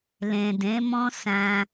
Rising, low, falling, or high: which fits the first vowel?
low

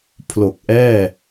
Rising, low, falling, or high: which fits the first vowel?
low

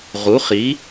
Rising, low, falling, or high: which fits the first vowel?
rising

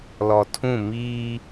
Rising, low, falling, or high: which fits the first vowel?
low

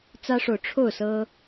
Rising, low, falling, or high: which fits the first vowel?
high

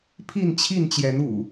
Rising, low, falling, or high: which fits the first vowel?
falling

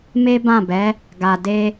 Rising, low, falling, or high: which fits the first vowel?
high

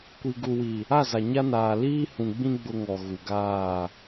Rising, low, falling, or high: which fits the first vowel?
low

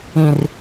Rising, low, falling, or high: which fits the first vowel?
low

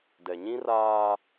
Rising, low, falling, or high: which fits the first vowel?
low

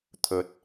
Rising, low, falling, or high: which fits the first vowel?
low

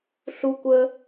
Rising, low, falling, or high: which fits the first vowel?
high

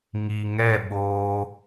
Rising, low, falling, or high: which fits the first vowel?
low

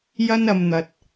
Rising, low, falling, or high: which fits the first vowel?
high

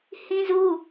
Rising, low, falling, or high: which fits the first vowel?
high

